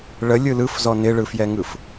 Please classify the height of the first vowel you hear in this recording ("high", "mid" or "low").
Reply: mid